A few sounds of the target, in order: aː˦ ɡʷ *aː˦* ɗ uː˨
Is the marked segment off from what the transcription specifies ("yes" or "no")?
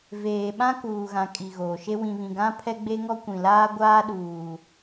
no